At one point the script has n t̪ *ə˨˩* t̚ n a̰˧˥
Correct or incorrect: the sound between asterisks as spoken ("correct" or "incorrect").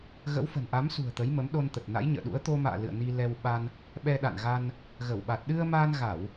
correct